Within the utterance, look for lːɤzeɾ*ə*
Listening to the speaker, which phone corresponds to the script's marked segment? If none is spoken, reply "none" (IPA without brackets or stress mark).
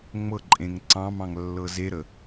ə